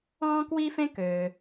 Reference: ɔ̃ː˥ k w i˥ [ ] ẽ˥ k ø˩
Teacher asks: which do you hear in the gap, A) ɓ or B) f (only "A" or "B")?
B